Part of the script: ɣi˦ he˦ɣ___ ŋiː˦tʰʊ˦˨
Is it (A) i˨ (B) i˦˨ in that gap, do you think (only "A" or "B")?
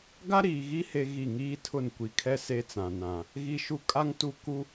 B